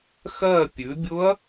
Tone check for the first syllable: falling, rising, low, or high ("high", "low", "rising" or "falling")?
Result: falling